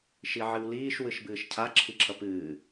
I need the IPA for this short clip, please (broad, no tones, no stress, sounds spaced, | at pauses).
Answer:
ʃ i ʕ ɨ w l iː ʃ w ɨ ʃ b ɨː ʃ cʰ a ǁʰ i ǁʰ ʌ p ɨː